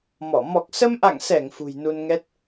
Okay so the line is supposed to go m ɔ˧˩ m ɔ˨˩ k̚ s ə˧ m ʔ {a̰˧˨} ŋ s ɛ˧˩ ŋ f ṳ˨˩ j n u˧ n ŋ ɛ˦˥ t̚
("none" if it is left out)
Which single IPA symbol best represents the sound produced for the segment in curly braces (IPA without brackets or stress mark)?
a̰˧˨